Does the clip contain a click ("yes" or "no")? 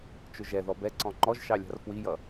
yes